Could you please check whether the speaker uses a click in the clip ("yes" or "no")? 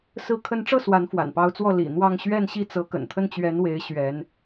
no